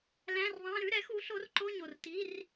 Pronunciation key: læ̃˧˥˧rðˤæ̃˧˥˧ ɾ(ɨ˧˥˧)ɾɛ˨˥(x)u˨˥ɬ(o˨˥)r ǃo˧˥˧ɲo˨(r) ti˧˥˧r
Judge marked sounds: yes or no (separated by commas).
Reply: no, yes, yes, yes